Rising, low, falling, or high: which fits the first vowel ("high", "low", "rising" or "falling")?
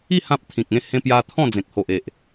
falling